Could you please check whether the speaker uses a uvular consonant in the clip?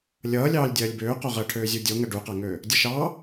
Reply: yes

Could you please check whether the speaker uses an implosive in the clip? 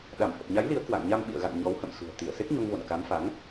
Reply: yes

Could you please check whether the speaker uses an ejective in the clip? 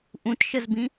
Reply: no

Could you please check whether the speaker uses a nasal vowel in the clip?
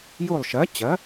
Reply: no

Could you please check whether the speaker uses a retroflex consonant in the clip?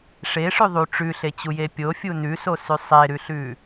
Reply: yes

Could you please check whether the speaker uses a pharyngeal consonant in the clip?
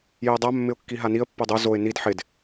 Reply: yes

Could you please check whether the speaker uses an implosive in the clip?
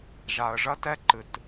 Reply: no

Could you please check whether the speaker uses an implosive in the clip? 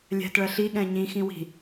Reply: yes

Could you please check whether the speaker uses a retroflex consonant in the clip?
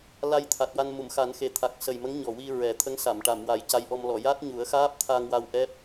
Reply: yes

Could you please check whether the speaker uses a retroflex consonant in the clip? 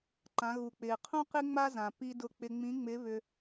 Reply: no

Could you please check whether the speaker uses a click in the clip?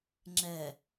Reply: yes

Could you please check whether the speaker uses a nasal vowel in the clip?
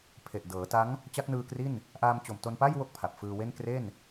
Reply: no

